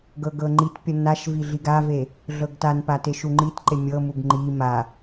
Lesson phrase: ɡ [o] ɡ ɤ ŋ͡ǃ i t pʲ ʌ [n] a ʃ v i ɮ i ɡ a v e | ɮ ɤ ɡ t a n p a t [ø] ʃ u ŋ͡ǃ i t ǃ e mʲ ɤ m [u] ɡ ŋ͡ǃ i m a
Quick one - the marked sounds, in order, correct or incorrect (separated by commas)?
incorrect, correct, incorrect, correct